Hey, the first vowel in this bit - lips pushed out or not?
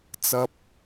no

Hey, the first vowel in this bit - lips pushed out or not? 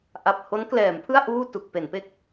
no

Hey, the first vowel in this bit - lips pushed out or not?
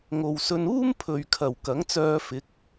yes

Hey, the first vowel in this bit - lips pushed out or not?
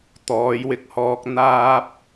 yes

